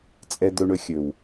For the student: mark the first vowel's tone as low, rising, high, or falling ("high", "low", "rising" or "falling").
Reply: low